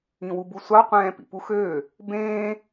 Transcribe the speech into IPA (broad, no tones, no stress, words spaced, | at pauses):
ĩwubusʷɑ qʷɛ̃ːpḭpuxøː | bẽː